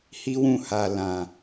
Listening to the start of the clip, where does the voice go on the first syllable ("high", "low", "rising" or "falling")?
high